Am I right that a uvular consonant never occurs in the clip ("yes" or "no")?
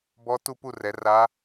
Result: yes